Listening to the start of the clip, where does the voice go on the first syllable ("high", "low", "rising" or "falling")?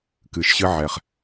low